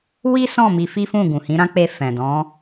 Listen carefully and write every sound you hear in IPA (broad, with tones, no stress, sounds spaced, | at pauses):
w i˦ s ɔ̃˦˨ m i˧ f i˦ f ũ˦˨ ɡ ũ˨ h ĩ˨˦ ɾ ã˦ k͡p e˧ f ɛ̃˨ d ɔ̃˨˦